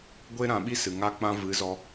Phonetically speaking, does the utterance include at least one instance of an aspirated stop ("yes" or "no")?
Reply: no